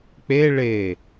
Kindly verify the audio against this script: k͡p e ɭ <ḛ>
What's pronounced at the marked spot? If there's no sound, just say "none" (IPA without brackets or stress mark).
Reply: e